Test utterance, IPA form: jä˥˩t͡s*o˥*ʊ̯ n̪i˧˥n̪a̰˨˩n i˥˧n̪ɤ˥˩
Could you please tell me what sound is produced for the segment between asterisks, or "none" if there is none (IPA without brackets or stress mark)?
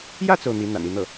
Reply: o˩